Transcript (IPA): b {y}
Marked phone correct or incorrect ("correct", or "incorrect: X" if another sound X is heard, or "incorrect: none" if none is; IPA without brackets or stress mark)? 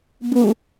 incorrect: u